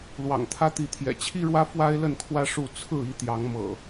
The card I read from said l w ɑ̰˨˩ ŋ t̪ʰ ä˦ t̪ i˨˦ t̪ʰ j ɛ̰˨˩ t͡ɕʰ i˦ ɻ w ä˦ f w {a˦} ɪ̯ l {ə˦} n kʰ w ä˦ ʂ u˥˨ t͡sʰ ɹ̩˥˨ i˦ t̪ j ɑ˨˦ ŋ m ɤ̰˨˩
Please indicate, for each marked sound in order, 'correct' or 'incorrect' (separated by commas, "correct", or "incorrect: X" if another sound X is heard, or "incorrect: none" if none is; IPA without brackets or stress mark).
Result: correct, incorrect: ə˥˨